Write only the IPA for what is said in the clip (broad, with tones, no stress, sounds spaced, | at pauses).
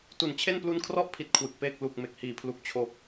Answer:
t u˨˩ n t͡ɕʰ e˥˩ n p l u˦˥ n kʰ r ɔ˥˩ ʔ pʰ i˦˥ t̚ kʰ w ɯ˨˩ k̚ p eː˥˩ k̚ l u˨˩ k̚ m e˨˩ k̚ h iː˩˦ pʰ l u˨˩ k̚ t͡ɕʰ o˨˩ k̚